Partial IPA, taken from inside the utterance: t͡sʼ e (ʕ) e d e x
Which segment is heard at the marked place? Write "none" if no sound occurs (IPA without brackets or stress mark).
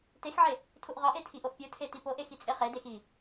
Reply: χ